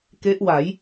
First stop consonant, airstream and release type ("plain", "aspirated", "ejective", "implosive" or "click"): plain